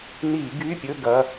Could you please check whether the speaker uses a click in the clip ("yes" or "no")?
no